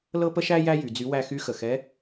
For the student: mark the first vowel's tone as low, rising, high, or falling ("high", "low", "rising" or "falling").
high